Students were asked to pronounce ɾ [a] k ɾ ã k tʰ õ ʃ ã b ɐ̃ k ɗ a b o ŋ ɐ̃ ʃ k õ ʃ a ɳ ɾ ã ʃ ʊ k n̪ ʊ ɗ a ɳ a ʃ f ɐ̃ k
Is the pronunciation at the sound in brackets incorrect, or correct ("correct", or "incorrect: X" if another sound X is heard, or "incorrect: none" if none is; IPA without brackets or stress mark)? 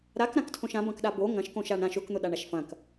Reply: correct